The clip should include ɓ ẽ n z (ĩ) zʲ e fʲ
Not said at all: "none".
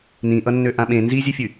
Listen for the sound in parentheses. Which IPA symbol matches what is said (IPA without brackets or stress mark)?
i